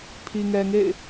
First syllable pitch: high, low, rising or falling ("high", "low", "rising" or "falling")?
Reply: low